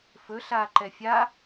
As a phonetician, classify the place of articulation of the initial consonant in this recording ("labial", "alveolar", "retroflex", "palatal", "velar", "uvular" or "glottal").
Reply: labial